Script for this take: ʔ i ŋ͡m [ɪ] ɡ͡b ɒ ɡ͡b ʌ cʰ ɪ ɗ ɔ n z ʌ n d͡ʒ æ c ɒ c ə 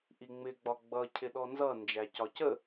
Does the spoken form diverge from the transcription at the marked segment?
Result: no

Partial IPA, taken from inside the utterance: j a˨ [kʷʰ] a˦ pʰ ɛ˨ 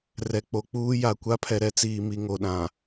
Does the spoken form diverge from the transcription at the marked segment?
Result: yes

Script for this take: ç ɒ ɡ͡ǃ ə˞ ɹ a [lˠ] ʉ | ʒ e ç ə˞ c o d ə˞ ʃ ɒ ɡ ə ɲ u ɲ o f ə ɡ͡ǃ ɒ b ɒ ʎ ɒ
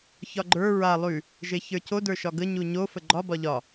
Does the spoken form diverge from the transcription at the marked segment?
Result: no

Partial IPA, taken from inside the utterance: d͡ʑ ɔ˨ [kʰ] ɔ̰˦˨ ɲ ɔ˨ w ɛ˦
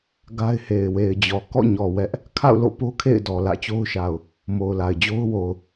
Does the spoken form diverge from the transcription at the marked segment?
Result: yes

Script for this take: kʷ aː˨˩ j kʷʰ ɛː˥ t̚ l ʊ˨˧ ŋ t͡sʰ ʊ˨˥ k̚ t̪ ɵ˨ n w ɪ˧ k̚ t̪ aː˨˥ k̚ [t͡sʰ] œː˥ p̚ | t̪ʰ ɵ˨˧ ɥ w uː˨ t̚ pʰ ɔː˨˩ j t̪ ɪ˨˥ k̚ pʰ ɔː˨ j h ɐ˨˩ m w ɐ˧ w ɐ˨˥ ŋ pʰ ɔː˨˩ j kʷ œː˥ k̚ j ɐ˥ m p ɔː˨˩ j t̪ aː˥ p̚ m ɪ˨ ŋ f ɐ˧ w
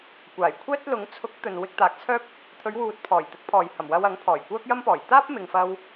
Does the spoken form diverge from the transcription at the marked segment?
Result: no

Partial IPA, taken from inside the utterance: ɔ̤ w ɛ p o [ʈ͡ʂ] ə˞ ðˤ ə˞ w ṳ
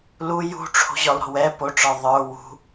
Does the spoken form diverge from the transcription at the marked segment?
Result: no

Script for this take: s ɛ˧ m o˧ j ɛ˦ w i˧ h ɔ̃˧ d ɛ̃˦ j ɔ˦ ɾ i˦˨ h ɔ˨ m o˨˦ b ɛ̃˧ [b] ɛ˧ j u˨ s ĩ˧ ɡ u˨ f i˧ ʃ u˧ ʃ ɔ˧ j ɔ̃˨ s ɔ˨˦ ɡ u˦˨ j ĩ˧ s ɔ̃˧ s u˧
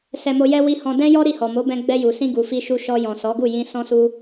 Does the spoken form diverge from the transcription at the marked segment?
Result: yes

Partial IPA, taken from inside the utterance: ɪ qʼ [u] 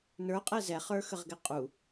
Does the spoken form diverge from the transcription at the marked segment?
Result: no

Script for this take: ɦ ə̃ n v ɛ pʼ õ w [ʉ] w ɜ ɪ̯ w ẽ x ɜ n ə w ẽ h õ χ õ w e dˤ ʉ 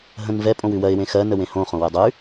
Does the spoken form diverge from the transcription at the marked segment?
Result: no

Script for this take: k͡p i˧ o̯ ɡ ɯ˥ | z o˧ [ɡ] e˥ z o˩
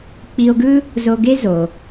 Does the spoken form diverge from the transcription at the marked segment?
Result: no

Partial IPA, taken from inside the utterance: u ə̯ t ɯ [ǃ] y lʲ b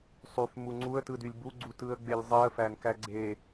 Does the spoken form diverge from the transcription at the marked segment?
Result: yes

